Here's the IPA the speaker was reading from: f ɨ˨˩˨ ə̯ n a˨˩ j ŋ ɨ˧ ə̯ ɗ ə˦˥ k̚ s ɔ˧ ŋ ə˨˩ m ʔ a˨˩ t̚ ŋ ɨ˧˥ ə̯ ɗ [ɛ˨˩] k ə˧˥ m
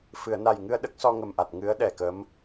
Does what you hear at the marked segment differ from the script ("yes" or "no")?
no